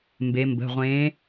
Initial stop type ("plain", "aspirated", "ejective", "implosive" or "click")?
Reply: plain